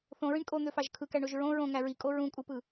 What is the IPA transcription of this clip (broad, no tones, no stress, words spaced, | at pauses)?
θõɹĩɳ kʼon̪øfɑʒ kʰɯkæɳoʒ ɹõ ɹõŋæ ɹikʼo ɹũkʼupɯ